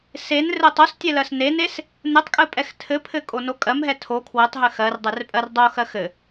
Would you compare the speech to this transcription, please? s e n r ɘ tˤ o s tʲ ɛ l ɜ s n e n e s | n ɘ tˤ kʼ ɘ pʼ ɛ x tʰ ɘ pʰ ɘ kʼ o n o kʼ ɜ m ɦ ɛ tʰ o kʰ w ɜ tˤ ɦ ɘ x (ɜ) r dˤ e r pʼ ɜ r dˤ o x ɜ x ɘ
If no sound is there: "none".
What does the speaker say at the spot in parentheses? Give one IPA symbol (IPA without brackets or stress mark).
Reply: ɜ